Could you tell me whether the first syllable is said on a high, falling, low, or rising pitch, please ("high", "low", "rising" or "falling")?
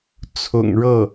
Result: low